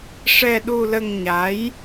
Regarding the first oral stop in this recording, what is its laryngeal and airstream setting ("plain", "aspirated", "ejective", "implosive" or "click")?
implosive